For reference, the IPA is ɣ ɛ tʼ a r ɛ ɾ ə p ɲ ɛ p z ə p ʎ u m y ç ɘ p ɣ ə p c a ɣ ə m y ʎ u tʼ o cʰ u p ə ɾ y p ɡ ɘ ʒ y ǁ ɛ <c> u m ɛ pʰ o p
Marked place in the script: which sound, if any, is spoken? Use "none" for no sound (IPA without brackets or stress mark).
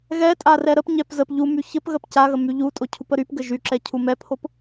cʰ